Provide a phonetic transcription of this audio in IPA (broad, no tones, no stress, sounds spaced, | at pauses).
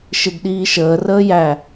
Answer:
ʃ ɪ d ɗ iː ʃ əː r əː j æ